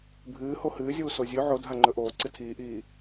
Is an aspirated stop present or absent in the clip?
present